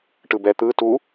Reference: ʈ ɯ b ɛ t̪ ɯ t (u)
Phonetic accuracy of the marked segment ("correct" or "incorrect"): correct